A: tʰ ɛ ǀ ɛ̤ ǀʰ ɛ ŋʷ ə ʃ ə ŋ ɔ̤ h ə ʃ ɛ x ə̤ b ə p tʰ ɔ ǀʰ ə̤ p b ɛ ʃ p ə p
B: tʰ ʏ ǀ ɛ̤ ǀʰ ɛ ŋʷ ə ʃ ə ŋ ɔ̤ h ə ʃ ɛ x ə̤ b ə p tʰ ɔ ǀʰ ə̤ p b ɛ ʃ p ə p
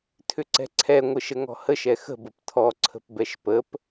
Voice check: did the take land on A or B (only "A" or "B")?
B